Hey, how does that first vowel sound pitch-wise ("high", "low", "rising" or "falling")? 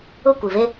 falling